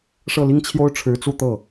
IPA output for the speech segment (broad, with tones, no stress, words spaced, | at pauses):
ʂɤ˥˩li˥ŋ t͡ɕʰjo˥ʊ̯ʈ͡ʂʰɻ̩˧˥t͡su˥˧ t̪ɤ˥˩